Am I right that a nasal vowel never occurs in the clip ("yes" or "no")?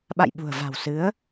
yes